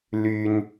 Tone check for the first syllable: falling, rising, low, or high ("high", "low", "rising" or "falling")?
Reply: high